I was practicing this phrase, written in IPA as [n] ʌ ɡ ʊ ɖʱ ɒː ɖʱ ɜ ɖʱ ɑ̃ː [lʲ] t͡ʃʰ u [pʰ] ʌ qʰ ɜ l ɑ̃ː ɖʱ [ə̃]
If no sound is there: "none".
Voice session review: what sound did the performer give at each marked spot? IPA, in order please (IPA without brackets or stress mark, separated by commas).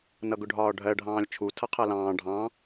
n, lʲ, tʰ, ɑ̃